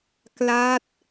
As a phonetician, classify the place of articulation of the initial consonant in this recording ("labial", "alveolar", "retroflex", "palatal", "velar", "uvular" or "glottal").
velar